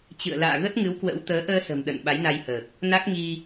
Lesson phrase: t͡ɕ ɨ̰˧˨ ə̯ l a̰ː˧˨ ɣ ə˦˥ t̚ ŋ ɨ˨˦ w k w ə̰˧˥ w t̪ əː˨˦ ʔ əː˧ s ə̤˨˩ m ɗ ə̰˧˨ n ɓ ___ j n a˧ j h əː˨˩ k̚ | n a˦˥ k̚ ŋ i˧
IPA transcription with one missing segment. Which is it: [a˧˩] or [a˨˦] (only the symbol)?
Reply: a˨˦